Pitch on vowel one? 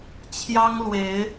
high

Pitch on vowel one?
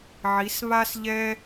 rising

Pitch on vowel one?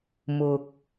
low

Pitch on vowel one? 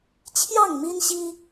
falling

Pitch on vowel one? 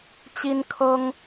high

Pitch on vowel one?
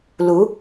rising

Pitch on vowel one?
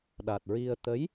low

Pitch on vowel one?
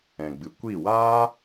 low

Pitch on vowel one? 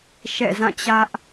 falling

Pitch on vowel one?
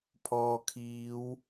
low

